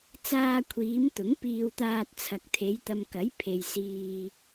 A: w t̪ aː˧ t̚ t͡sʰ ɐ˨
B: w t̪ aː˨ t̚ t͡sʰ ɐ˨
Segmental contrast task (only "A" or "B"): A